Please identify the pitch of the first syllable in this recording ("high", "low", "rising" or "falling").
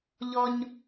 high